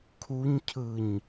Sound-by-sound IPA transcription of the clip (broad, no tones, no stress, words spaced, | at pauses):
kʰuɲcʰɯɲ